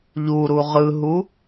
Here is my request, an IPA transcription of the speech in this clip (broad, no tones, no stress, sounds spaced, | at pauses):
ʎ u ɾ u ʁ ɯ ɦ u